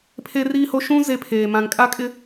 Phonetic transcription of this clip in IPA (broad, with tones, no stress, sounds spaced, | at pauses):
pʰ e˦ r iː˦ h o˦ ʃ ũ˦ z e˦ pʰ eː˨ m ã˨ ŋ kʼ a˦ kʼ ɪ˦